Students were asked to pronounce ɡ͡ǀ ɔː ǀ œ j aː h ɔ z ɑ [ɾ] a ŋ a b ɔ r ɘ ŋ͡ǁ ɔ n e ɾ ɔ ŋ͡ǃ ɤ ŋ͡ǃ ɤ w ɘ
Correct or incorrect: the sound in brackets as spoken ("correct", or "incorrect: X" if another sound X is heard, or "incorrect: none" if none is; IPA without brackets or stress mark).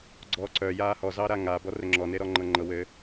correct